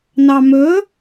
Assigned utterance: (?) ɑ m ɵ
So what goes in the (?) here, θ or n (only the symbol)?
n